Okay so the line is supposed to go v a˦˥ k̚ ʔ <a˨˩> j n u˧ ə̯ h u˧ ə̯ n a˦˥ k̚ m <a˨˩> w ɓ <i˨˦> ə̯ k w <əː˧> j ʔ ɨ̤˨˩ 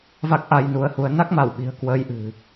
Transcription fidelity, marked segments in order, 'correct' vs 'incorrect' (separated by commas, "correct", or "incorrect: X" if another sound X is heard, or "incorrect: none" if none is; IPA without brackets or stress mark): incorrect: a˧, incorrect: a˧˩, incorrect: i̤˨˩, correct